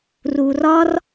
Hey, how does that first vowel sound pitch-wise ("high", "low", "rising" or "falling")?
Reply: low